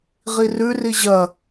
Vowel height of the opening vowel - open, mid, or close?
close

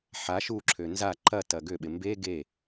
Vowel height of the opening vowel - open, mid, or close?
open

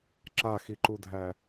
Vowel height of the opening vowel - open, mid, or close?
open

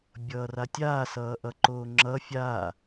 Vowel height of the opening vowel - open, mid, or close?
mid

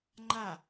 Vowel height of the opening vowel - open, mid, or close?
open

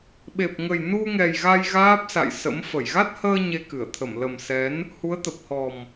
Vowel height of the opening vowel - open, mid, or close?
mid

